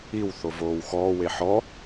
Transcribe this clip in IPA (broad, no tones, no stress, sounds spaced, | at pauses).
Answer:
i w θ o v oː w x ɔː w e ħ ɔ